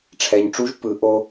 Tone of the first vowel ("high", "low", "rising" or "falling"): low